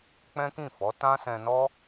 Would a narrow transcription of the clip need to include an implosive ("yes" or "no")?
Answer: no